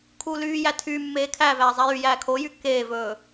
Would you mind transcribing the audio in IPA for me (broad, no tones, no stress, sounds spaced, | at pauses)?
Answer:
kʰ uː l yː j æ tʰ y mː eː kʰ æ v æː zˤ æ j y j æː kʰ o j y kː eː v ɵː